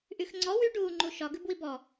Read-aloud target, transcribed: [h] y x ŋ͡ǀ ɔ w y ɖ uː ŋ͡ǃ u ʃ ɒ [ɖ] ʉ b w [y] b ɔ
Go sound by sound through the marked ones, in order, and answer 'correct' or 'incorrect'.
incorrect, incorrect, incorrect

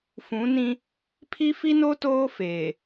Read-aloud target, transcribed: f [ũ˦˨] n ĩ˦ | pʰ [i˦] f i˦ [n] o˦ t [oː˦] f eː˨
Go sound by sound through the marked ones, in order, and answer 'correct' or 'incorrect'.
incorrect, correct, correct, correct

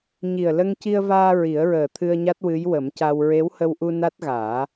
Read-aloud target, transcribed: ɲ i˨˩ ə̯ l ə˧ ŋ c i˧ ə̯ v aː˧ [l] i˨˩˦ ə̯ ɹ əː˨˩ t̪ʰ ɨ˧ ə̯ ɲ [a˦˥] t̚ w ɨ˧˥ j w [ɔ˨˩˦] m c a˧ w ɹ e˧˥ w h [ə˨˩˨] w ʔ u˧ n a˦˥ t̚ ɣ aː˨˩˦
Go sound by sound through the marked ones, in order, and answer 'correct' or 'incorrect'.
incorrect, correct, incorrect, incorrect

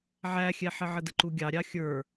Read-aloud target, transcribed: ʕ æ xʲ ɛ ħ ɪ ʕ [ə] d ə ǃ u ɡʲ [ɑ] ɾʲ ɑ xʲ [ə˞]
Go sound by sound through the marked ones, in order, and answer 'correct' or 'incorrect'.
correct, correct, correct

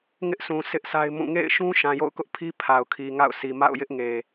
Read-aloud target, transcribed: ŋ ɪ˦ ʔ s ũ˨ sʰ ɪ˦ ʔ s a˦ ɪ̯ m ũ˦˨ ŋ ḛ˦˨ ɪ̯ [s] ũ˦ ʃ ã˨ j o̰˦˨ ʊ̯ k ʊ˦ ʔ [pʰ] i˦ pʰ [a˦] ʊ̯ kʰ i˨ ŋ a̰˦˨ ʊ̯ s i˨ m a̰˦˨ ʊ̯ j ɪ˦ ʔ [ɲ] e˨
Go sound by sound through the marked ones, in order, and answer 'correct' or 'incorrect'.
incorrect, correct, incorrect, incorrect

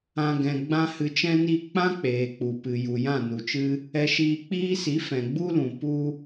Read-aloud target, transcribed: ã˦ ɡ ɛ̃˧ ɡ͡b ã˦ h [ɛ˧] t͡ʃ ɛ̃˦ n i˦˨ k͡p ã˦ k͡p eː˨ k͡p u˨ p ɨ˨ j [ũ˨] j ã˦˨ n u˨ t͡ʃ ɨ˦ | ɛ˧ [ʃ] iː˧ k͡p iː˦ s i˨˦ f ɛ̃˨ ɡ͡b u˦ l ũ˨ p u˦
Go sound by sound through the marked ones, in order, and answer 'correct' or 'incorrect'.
incorrect, incorrect, correct

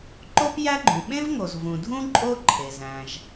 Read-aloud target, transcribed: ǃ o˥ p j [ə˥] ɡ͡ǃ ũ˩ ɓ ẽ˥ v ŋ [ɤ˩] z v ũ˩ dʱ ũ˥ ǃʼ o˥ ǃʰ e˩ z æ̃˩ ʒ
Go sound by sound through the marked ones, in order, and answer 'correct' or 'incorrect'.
incorrect, incorrect

